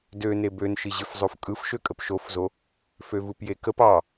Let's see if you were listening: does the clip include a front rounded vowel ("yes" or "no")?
yes